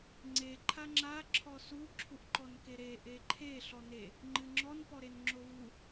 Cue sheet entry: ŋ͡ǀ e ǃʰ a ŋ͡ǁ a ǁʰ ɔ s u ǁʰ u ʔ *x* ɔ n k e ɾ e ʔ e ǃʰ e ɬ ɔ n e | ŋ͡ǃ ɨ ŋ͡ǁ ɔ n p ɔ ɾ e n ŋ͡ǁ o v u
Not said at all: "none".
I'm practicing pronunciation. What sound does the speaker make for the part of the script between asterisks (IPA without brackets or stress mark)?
ǃ